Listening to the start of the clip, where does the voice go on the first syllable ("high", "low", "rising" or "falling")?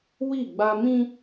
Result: falling